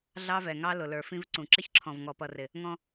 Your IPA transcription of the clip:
ɮ ɑ˦ v ɛ˨ ŋ ɑ˦ l ʊ˨ l ə˞˨ f ĩ˦ v ǀ ũ˨ ǁ ɪ˦ ç ǁʰ ɔ̃˨ v ŋ ɔ˨ p ʌ˨ r ɪ˨ | ŋ ɔ̃˦

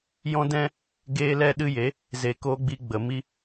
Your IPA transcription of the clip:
j ɔ̃˦ d ɛ̃˦ | ɡ eː˦ l ɛ˦ ɗ ɨ˦ j e˨˦ | z e˧ k oː˦ ɡ͡b i˦ ɡ͡b ə˨ m i˦

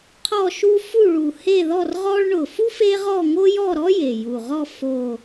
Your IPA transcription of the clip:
qʰ ɔ˥˧ ʃ u˥ f u˥˧ ɭ u˨˩ h e˥˧ ð ɔ˥˧ r ʁ ɔ˥ ɭ ɳ ʊ˨˩ f u˥ f e˥ ʁ ɔ˥˧ ŋ o˥ j ɔ˥˧ ɾ ɔ˥ j e˨˩ j u˨˩ ʁ ɔ˥˧ f o˨˩

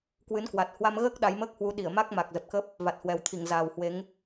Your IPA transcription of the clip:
k w ɨ˨˦ n k w a˨˩ t̚ h w a˧ m ɣ əː˦˥ k̚ ɗ a˨˦ j m əː˦˥ k̚ h w u˨˦ ɗ i˧˩ ə̯ m a˦˥ k̚ m a˨˩ k̚ z ə˨˩ p̚ k ə˦˥ p̚ | v a˨˩ t̚ h w ɛ˨˩ w t̪ʰ i˧˩ ŋ z aː˨˩ w h w e˨˦ ŋ

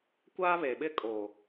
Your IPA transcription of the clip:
kʷ aː˦ β e˨ ɓ ɪ˦ kʼ o˨

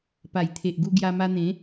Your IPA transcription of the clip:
p a˨˩ j t̪ʰ e˨ ʔ ɡ u˧ ɡ j a˧ m a˧ n̪ ẽ˨˦

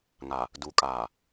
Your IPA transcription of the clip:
ŋ a˨ | d u˨ kʼ aː˨

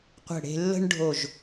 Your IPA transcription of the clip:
qʷ ə̤˧˩ ɽ e̤˧ lː ə̤˥ ɳ ɖʱ o˧˩ ʒ

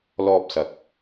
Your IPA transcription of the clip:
l ɔː˧ p̚ s ɐ˨˥ k̚

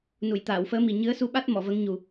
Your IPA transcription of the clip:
n u˨˩˨ j t̪ aː˨˩˨ w f əː˧˥ m i˨˩ ɲ ɨ˧˥ ə̯ s u˧ ɓ a˦˥ t̚ m ɔ˨˩˨ v ə˧˥ ŋ ɲ u˨˩

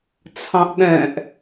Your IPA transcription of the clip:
t͡sʰ ɑ̃ ʔ ɗ ɛ̃ ʔ

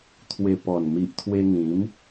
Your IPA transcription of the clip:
t̪ʰ w e˨˩ p ɔ˨˩ n m i˨ ʔ t̪ʰ w e˧ ŋ ĩ˨˦ m

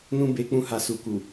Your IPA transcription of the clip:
n ũ˦ b e˧ k͡p ũ˧ h a˨ s u˨ k u˨

